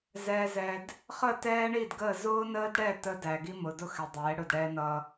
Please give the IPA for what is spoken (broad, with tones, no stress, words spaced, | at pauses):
zɛː˨zɛ˨d | χə˦˨tɛː˦ɳi˦˨dɡəː˦˨ zʊː˦nəː˦dɽɛ˦˨ tə˦dæ˨ɡi˦ mʊ˨dʊ˦xɛ˨ dˤɛː˨˦ɽʊ˦˨d ɽɛː˦nʌ˦